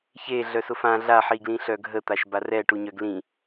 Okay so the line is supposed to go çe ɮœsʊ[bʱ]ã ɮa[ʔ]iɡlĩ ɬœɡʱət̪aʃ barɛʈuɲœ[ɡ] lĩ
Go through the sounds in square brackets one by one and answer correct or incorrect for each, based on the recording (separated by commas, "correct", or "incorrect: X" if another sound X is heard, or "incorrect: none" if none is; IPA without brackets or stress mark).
incorrect: f, incorrect: ħ, correct